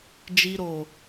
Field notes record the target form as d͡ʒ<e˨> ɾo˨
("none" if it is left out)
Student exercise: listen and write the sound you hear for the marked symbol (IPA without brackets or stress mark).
i˨